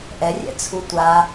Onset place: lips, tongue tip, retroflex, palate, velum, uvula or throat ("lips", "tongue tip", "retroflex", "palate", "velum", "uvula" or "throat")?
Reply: throat